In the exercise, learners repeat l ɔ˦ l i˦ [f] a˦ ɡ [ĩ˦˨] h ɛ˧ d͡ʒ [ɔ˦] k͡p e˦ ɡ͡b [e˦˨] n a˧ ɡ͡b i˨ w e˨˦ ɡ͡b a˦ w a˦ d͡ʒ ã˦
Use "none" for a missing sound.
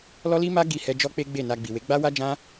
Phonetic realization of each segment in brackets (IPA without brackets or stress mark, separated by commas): m, i˦˨, ɔ˦, e˦˨